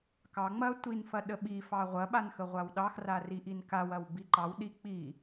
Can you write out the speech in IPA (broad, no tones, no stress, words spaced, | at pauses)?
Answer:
kɑ ŋ͡mɐ tʷinfɐ ɗəɓifɑ ʁʷɐɓan xəʁʷawɗɑxra riʔinkawɐw biǃɑwɗi k͡pi